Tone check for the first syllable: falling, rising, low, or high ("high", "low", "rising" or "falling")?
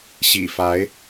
low